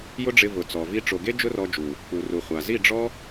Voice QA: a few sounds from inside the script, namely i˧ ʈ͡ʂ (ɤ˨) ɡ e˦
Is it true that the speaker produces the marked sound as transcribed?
no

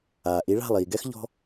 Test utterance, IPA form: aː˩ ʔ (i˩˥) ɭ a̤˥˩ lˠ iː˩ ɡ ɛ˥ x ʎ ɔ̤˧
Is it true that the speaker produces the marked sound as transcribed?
yes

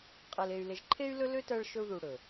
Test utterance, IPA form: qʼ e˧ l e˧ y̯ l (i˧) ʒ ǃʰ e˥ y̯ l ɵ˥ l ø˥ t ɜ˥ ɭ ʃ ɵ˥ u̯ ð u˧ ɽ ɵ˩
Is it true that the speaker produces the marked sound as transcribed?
no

